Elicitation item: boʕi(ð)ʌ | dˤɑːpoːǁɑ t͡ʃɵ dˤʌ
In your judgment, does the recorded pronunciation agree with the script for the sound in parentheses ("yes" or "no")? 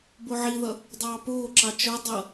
yes